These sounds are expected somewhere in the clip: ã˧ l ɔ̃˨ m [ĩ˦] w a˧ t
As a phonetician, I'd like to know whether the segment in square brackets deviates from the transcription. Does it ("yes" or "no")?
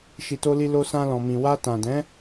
yes